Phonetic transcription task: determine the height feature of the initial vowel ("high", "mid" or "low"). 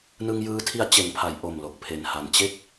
high